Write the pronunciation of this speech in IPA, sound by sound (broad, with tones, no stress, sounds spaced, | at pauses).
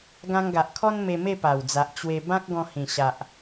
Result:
ɡ ã˧ ŋ ɡ a˨ ʔ kʰ ɔ˦ n m e˧ m e˥˧ p a˨˩ w d͡z a˨ ʔ t͡ɕ w e˧ b ã˦ k̚ ɡ ɔ̃˧ h ĩ˨˩ ɕ a˨ ʔ